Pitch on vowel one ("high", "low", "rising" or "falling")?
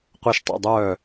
falling